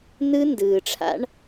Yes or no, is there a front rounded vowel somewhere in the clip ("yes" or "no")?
no